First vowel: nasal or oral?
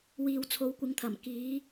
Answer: oral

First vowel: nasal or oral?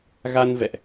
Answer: oral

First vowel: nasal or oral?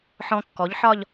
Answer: nasal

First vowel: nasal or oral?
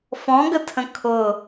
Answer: nasal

